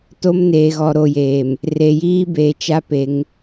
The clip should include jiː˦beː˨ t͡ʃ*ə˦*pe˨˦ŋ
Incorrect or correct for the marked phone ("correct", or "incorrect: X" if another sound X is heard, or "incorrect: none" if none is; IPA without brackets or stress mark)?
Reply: incorrect: a˦